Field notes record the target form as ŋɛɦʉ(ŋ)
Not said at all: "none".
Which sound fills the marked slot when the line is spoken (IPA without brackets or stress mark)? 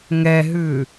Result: none